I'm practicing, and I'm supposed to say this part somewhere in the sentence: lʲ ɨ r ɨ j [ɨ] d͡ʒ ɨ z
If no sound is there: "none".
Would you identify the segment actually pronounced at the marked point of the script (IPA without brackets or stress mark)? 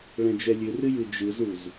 ɨ